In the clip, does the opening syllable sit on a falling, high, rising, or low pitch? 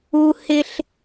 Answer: high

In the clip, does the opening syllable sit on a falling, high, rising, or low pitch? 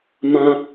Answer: high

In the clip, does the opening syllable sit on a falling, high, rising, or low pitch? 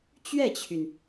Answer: falling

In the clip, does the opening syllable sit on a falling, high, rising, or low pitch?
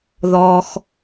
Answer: low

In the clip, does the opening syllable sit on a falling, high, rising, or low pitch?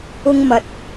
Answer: high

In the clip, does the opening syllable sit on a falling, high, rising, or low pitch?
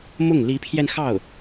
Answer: falling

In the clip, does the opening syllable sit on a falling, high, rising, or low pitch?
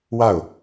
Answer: falling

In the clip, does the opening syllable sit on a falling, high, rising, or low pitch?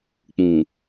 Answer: low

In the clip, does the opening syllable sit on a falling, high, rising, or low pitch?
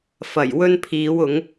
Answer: low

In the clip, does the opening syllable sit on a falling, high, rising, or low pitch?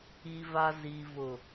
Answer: low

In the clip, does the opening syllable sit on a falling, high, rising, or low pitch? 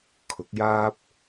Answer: rising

